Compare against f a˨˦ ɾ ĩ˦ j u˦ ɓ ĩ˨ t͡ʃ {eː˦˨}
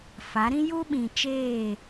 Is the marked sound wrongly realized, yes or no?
no